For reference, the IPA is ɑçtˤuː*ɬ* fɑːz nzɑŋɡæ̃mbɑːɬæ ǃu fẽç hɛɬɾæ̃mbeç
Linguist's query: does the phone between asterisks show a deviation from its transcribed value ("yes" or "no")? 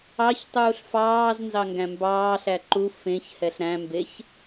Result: no